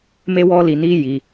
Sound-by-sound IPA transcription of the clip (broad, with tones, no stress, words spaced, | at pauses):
me˦wɔ˦li˧ni˦ ji˧